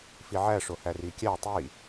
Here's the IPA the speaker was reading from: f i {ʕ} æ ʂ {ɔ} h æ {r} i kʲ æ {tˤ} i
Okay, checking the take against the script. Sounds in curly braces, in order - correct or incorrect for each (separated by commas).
correct, incorrect, correct, correct